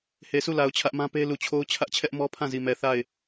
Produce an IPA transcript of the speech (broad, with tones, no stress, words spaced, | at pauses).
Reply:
he˨su˦˨la˨ʊ̯ t͡ɕʰä˦ʔmã˦pe˦ lu˨t͡ɕʰo˦ʊ̯t͡ɕʰä˦ʔ t͡ɕʰɛ˦ʔmɔ˦pʰã˦˨ zi˨mɛ˨ θa˦˨ɪ̯